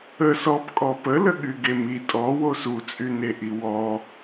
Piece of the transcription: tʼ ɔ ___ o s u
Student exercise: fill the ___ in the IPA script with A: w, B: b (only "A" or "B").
A